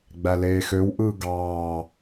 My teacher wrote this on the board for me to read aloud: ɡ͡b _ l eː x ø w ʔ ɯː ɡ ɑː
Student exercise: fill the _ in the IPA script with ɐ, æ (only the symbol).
æ